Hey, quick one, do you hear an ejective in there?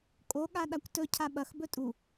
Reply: yes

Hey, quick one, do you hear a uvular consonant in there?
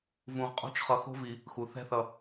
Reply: yes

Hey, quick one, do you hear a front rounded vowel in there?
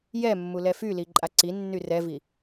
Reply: yes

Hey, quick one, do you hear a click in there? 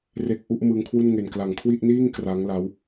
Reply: no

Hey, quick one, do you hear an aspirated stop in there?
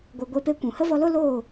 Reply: no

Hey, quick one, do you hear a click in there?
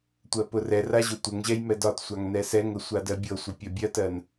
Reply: no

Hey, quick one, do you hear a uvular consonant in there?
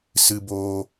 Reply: no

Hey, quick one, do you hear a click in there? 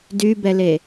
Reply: no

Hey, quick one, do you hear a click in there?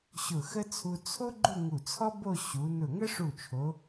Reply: yes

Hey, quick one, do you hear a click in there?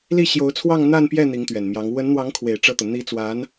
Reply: no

